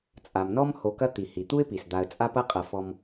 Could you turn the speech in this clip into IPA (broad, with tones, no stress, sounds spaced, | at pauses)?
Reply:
t͡sʼ a˩ m n ɔ˦ m h o˨ k ɐ˦ t̪ i˩ h i˩ t̪ u˥ ɪ̯ p i˩ s d̪ a˨ ə̯ t͡sʼ a˦ p ɐ˦ qʼ ɐ˨ f ɔ˨ m